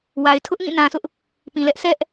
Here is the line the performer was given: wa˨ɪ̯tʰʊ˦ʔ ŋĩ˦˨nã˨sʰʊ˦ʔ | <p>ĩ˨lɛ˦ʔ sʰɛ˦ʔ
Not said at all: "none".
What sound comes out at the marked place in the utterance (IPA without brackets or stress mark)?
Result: p